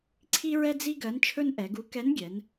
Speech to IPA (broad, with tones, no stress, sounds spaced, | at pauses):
ǀʰ i˥ ɹ ɛ˥ d͡z i˥ ɡ ɜ˧˥ n t͡ʃʰ ɵ˥ n ʔ ɛ˩˧ ɡ u˧˥ k ɛ˧˥ n ɡʲ ɛ˩˧ n